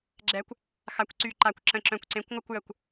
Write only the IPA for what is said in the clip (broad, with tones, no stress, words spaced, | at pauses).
ɡ͡ǁɛ˨˥kʷ | xa˨˥kʷǀy˧˩ǃa˧˩kʷ ǁə̃˧˩ǁœ̃˧˩kʷ ǀẽ˨˥kʷŋʷə˥˧kʷ jə˧˩kʷ